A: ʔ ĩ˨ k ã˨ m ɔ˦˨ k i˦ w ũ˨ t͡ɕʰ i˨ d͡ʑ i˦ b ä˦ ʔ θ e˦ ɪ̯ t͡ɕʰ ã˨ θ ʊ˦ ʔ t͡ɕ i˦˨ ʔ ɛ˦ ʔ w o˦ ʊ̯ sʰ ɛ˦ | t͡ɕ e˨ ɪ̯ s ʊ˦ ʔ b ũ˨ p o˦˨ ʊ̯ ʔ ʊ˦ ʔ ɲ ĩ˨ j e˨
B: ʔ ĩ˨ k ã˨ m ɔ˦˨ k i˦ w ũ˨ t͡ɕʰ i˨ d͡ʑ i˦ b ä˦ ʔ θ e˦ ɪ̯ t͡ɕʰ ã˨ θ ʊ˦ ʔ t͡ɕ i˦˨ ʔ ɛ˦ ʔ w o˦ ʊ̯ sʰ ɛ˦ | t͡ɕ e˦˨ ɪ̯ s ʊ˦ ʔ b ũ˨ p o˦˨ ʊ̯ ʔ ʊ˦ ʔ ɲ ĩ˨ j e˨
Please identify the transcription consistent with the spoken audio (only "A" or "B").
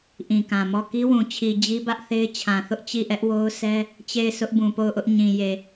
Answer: B